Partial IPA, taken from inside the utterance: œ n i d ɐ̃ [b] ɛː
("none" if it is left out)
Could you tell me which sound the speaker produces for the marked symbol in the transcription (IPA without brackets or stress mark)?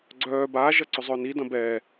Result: b